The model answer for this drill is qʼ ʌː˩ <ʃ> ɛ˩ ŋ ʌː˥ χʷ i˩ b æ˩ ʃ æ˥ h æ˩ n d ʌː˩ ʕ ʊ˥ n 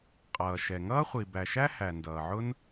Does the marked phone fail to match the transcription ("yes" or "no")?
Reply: no